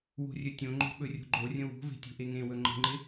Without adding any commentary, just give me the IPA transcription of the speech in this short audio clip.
w o̤ rʲ ɵ tʲ õ ŋ͡ǃ o̤ ɓ ɵ rʲ o̤ ɡ͡ǃ o rʲ ə̃ w o̤ v e̤ tʲ o̤ ʔ e ŋ ẽ w ɵ ŋ͡ǃ ə̤ ŋ͡ǃ ɪ

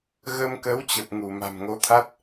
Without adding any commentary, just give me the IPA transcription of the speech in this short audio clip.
ɣ ə˧ m k ə˨˦ w t͡ɕ ə˨˩ p̚ ŋ u˧˩ m a̤˨˩ m ŋ o˨˦ t̪ʰ a˦˥ t̚

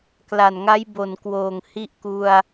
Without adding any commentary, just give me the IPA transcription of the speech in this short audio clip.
k l a˨˩ n ŋ a˦˥ j b o˨˩ n k w oː˨˩ ŋ h i˦˥ ʔ k u˧ a̯

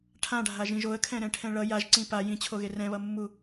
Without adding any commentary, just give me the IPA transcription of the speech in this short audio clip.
ʈʰ ã ɖʱ a ʒ ĩ ʒ o ə̯ kʰ ɛ̃ ɾ ɛ̃ ʈʰ ɛ̃ ɭ ʌ j a ʒ ǀ ĩ p a j ĩ t͡ɕʰ o ɣ e r ɛ̃ β ʌ mː u

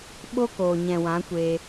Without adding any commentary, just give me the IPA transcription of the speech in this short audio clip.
ɓ o˦ k oː˨ ɲ ɛ̃˨ w ã˨˦ kʷ eː˧

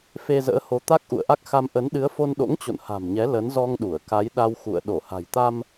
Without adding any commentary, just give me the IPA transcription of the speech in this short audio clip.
f e˧ z ə̰ː˧˥ h o˨˦ t̪ a˦˥ k̚ ʔ ṵ˧˨ ə̯ ʔ a˦˥ k̚ x a˧ m ʔ ə˨˦ n ɗ ɨ˨˦ ə̯ f o˧ n ɗ o̰˧˥ ŋ t͡ɕ o̰˧˨ n h a̤˨˩ m ɲ ɛ˨˦ l ə˨˦ n z ɔ˧ ŋ ɗ u˧˩ ə̯ k a˨˦ j ɗ a˧ w x ṵ˧˨ ə̯ ɗ o˧˩ h a̤˨˩ j t̪ a˧ m

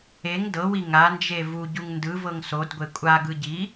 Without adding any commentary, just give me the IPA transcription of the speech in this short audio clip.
e ŋ d ɤ w i ŋ a n d͡ʒ e v u ɟ u ŋ n d ɯ v ɤ ŋ s o d ɡʷ e kʷʼ a ɡ ɯ ɟ i

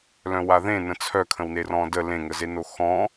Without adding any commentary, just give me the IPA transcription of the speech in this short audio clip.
l œ̃ w a ð ẽ n ə̃ t͡sʰ œ kʰ ə̃ w n e r ɔ̃ d ə l ẽ ŋ ə z e n o x ɔ̃

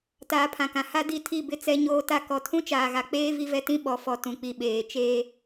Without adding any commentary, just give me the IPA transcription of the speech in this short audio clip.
t aː˨˦ pʰ ã˨ k ã˨ h a˦ d i˦˨ tʰ i˦˨ b ɪ˦ t͡s ɛ˦ ɲ oː˦ t a˦ k ɔ˨ tʰ ũ˦ t͡ʃ aː˨ ɣ a˨ k͡p eː˦ v i˦ v ɛ˦ t ĩ˦ ɓ ɔ˨ f ɔ˨ t ũ˨ k͡p i˨ ɓ eː˨ t͡ʃ eː˦

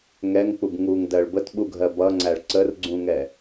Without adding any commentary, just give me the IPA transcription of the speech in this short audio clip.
ŋ ɛ ŋ k͡p u b ŋ u ŋ d ɜ ɭ b ə t ɓ u ɡʱ ɜ b ʌ ŋ͡ǀ æ ɭ ǀ ə r ɡ͡ǀ ũ ŋ ɛ

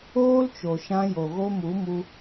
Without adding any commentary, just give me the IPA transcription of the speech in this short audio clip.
oː˦ l t͡ʃ o˨ ʃ ã˧ j o˨ ɣ o˧ m u˨˦ m u˧

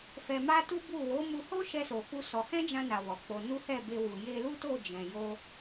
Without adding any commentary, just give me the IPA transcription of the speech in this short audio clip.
f ɛ˧ m a˦ t u˦ b u˦˨ w o˨˦ m u˧ h o˦ ʃ ɛ˦ s o˧ f u˦ s ɔ˧ h ɛ̃˦ d͡ʒ ã˧ n a˨ w ɔ˨ k͡p o˧ n u˦ h ɛ˦˨ b e˧ w u˨ j e˧ l u˦ t o˦˨ d͡ʒ ɛ̃˨ j o˧

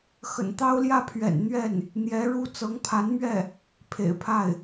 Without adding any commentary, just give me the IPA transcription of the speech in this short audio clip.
x ə̰˨˩ n t̪ ɑ˥ ʊ̯ l j ä˥˩ pʰ ɥ ɛ̰˨˩ n n̪ ɥ ɛ˥˩ n | n̪ j ɛ˧˥ ɻ u˥˩ t͡s ɤ˧˥ ŋ pʰ a˧˥ n m ɥ ɛ˥˩ | pʰ ḛ˨˩ ɪ̯ pʰ a˥˩ ɪ̯

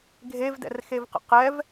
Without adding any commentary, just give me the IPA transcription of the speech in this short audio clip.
ɡʱ e v d ɛ̰ r x e v q ə̰ q ɛ v

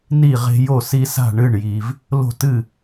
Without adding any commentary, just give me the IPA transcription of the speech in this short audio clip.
n i˥˨ ʁ e̤˦ j o˥˨ s i˦ s a̤˥˨ ɳ ɨ˥˨ ɳ j i˨ v | l o̤˥˨ t ɨ˥˨

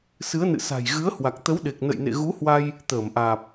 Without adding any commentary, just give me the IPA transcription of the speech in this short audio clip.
s ɨ˨˦ ə̯ n ɨ̰˧˨ s a̤˨˩ j ɣ ɨ˨˦ ə̯ h w a˨˩ k̚ t̪ ə˨˦ w ɗ e˨˩ k̚ n ə̰˧˨ j n ḛ˧˨ ɣ u˨˦ h w a˧ j | t̪ əː˧˩ m ʔ aː˨˩ p̚

